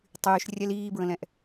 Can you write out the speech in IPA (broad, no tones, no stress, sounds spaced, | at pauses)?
tˤ yː ʃ rʲ ɛ l iː b ɹ ə̃ l ɛ̃ ʔ